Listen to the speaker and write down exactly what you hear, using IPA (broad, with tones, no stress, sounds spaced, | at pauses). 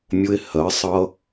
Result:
mʲ ʊ˦ e̯ h ɜ˨˥ sˤ ʌ˦